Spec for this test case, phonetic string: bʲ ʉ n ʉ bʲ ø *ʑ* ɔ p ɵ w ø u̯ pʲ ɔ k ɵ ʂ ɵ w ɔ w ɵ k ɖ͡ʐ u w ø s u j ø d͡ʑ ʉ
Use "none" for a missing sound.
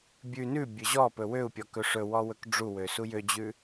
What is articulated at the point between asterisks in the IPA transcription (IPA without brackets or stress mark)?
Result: ʑ